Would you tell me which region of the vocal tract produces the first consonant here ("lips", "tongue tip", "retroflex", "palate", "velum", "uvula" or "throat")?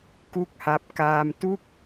velum